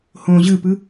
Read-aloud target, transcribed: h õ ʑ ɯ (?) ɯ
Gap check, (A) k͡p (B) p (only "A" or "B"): B